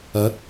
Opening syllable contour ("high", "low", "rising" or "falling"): rising